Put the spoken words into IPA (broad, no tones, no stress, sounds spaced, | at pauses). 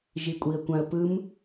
ʒ i kʷʼ i ə̯ kʷ ã ə̯ p ɯ m